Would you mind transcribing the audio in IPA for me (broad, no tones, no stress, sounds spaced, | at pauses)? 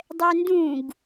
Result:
dˤ ɛ n d ũ ɡ